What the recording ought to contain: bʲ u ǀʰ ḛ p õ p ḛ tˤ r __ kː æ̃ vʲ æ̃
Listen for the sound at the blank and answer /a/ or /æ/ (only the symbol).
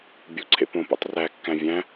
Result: æ